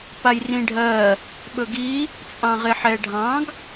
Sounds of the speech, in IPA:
p a j r ĩ ɖʱ ɜ | ɓ ɵ ɡ i | t͡sʼ ɑ̃ ʁ e ħ ɛ ɖʱ ɑ̃ ɡ

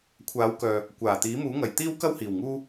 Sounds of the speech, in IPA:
kʷʰ aː˨˥ w k œː˨ | kʷ aː˨˩ t̪ iː˨˥ m uː˨˥ ŋ ɐ˨˩ j t̪ iː˥ w k ɐ˥ w h iː˨˩ w ŋ uː˥

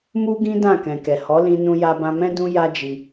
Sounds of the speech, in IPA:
m u˦ ɡ ĩ˦ d ã˦˨ k ɛ̃˨ k ɛ˨ h ɔ˨˦ l ĩ˧ n ũ˧ j a˧ b ã˧ m ɛ̃˦ d ũ˦ j a˦ d͡ʒ i˧

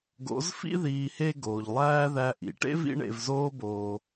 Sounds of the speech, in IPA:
ɡ o̰˨˦ z f ḭ˦ ð iː˧ h e˦ ɡ oː˨ ʎ lˠ æː˦ ð æ˧ ʔ ḭ˨ ʈ ḛ˦ v ḭ˧ ɳ ḛ˨ v z oː˧ b oː˨

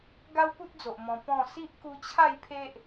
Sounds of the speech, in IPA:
ɡ a˦ w p u˦ t̚ d͡z o˨ ʔ m ɔ̃˧ p ɔ̃˥˧ s i˦ ʔ k u˧ t͡ɕʰ a˥˧ j pʰ e˦ ʔ

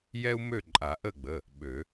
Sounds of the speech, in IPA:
j ɛ˦ u̯ m ø˦˨ ǃʼ a˨˩˦ ʔ ə˦˨ ɡ͡b ə˩˧˩ | ɓ ø˨˩˦

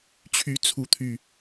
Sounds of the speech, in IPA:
t͡ɕʰ y˨˦ t͡sʰ u˨˦ t̪ʰ y˨˩

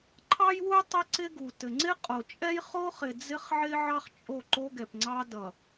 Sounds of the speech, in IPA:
ǃʰ ɑ˦ j w u˦ j tˤ ɪ˦ ǀ ɪ˦ ɡ u˨ t ɘ˨ ŋ͡ǀ ɪ˦ qʼ o˨ t͡ʃʼ ɛ˦ j χ o˦ χ ɪ˨ d͡z ɪ˦ χ ʕ ɪ˦ ʕ ɑ˦ χ t͡ʃʼ o˦˨ ǃ o˦ ɡ ɛ˨ p ŋ͡ǀ ɑ˦ d ʌ˨

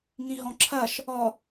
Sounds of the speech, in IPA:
ŋ ĩ ɦ ɔ̃ ǁʰ ɐ ʃ | ɔ

